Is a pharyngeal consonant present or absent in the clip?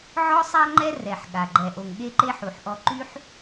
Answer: present